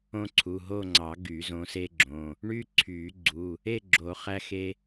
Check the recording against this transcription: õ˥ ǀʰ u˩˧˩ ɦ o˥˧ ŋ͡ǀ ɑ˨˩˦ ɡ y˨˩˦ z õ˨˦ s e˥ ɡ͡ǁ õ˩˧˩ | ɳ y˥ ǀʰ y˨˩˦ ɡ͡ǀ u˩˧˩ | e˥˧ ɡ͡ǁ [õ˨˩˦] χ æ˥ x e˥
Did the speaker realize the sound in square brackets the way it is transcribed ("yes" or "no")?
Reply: no